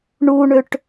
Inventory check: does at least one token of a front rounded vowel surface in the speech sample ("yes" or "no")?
yes